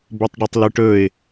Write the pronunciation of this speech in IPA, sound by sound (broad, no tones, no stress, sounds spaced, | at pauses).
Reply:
b ɵ tˤ ɖ ɵ tˤ l ʉ ʈ ɵ ɪ̯